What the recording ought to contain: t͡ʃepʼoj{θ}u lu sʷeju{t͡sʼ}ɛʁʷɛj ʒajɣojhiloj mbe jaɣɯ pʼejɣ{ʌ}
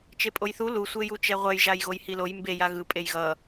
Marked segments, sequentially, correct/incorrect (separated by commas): correct, incorrect, correct